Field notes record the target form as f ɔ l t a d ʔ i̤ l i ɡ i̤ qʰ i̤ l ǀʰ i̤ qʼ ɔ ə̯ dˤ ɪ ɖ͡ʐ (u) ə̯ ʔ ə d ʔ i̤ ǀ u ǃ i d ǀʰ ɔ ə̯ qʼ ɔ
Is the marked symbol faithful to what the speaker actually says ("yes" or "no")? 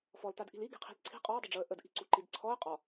yes